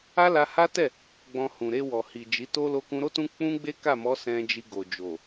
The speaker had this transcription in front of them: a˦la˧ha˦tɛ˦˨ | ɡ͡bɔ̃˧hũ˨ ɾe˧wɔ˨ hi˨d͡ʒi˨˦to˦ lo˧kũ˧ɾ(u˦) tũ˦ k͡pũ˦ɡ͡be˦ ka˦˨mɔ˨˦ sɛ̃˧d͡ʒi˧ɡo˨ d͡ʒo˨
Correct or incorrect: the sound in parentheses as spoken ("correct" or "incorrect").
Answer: incorrect